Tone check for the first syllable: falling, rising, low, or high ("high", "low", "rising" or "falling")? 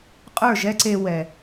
falling